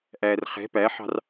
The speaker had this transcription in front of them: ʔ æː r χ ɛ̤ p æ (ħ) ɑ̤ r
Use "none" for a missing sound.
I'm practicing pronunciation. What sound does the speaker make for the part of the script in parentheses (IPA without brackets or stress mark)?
ħ